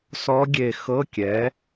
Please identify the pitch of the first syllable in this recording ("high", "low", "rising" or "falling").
rising